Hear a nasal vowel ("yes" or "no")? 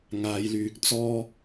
no